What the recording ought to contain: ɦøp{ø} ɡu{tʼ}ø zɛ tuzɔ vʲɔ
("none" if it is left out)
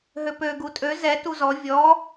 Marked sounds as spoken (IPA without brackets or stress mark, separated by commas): ø, tʼ